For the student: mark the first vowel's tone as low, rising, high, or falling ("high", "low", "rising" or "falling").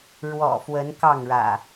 low